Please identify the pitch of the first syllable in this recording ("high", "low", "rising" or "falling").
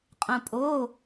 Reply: low